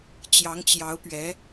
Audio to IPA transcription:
t͡ɕjɑ˧˥ŋt͡ɕjɑ˧˥ʊ̯pɥɛ˧˥

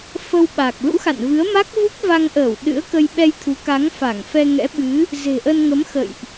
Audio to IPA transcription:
fə˧wɓa˨˩k̚ lṵ˧˥xa̰˧˨nvɨ˨˦ə̯ ma˦˥k̚vu˦˥k̚ va˧ŋʔəː˧˩w ɗɨ̰˧˥ə̯kə˧j ɓɛ˧jt̪ʰu˨˦ka˨˦ŋ fa˧˩ŋfɛ˧ŋɛ̰˧˥ɓɨ˨˦ | ze̤˨˩ʔə˧nŋə˨˦m xə̰˧˨jʔ

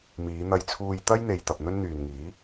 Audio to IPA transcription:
miː˨˧n̪ɐ˧jt͡sʰuː˧j t̪ɐ˥jn̪e˨j t̪ɐ˨p̚n̪ɵ˥n n̪yː˨nŋiː˨˥

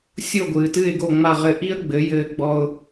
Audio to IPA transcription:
sʲo˥˩ɡʷɨː˩tɨ˥˩ɪ̯ ɡo˥˩ŋ͡ma˥˩ʁɘ˥˩ ʔi˥ə̯ɡ͡bɘ˩˥jɘː˧ɡ͡bɔ˧ʊ̯

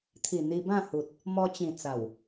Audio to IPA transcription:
t̪ʰi˨˩n̪i˧bã˥˧hu˨t̚ | mɔ˧t͡ɕĩ˨˩ t͡sa˨˩w

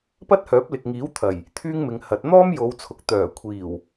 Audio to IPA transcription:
pɐ˥t̚hœː˨˥p̚lɪ˨k̚ ŋiː˨˥w t̪ʰɐ˨˩j | t̪ʰyː˥ŋmɪ˨˧ŋhɐ˨˥t̚ n̪ɔː˥mjo˨˧wt͡sʰʊ˨k̚ t̪œː˨˩kʷʰiː˨˩w

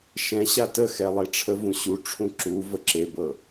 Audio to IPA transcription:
ʃɛ̃ɕa təxɛ lˠeʈ͡ʂʰəvũ ɕuʈ͡ʂʰũ ǁu vəǁebɤ

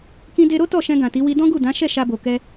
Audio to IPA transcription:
kĩ˧de˧ɾo˦ tɔ˦˨ʃɛ̃˧ɡã˨ ti˨˦ wi˧dɔ̃˦ɡu˦˨ dã˨˦ʃɛ˦˨ ʃa˧bo˨ kɛ˧

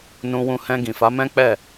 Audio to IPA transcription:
nũ˧wũ˧ hɛ̃˧ ɡĩ˨fa˨˦ mɛ̃˦k͡pɛ˦˨

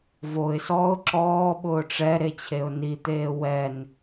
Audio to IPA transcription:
voɪ̯sɔːʊ̯ ǁɔːɓʊː ʈ͡ʂɛɾe t͡ɕʰeʊ̯nit̪eː wɛn

